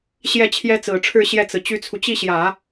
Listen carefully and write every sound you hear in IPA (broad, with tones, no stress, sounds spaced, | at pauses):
ɕ j ɛ˥˩ t͡ɕʰ j ɛ˥ t͡s ɹ̩˨˩ ʈ͡ʂʰ ɻ̩˥˧ ɕ j ɛ˥˩ t͡s ɹ̩˩ t͡ɕ y˥ t͡sʰ u˨ t͡ɕ i˥˩ ɕ j ä˨˩˦